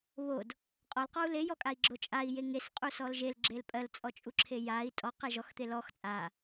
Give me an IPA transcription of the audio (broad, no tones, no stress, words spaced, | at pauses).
βod | qʼɔlqɔu̯ lejɔkʼai̯ɡ͡ǁo t͡ʃʼai̯je ŋesqʼusɔl ʒelɡ͡ǁel pʼɜlt͡sʼɔt͡ʃʼuǁʰe jai̯ tʼɔqe ʒɔxt̪e lɔx t͡sʼa